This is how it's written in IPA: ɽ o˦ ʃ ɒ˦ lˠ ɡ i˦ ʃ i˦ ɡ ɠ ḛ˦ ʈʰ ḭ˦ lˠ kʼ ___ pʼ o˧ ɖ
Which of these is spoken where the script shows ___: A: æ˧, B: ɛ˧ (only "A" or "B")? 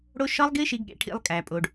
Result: A